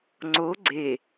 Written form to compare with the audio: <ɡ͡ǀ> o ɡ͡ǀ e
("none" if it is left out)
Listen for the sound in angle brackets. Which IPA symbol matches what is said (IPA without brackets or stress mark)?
ŋ͡ǀ